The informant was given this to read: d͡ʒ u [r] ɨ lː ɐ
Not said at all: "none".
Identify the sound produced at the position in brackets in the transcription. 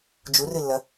r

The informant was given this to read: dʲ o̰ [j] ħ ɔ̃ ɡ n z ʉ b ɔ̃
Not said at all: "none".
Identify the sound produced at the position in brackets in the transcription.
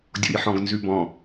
j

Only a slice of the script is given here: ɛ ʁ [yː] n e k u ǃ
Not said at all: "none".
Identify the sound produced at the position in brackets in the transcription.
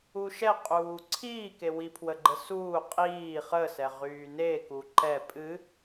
yː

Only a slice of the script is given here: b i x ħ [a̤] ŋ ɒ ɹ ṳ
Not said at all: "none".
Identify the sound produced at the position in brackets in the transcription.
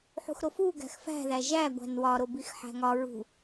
æ̤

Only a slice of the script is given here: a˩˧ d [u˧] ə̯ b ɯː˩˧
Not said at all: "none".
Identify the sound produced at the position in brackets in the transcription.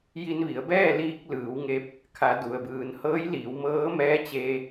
u˩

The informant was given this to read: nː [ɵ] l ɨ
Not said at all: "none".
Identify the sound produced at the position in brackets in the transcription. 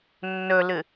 ɵ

